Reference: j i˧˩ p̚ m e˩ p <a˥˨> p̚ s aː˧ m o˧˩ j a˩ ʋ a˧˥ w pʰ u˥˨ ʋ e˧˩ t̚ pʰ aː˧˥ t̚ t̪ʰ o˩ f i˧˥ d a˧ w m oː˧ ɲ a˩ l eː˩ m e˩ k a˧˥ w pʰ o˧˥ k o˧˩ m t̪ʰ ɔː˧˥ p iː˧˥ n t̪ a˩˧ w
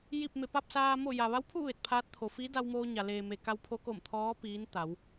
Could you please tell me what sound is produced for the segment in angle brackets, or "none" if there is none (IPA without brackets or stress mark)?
a˥˨